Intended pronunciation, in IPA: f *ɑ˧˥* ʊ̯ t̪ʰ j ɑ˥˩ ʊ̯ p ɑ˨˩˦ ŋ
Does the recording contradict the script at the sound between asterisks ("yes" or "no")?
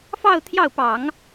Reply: yes